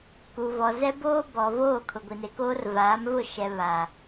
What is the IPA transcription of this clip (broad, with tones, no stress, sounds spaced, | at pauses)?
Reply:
k u˨ v ɔ˨ z ɛ˦ b oː˦ b ɔ˨ v oː˦˨ kʰ ʊ˨ ɡʷ i˨ n e˨ k oː˦ r v aː˨˦ m v ʊ˦˨ ʃ ɛ˨ β a˨